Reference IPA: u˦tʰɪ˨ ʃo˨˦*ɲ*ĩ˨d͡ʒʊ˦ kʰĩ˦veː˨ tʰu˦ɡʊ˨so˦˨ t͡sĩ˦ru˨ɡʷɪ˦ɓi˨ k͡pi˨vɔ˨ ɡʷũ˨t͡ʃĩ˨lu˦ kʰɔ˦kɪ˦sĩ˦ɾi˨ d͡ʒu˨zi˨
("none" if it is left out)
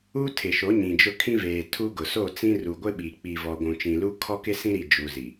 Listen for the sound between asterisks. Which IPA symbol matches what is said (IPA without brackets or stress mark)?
ɲ